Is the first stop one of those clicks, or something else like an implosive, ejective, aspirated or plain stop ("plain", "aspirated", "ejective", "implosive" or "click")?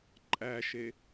click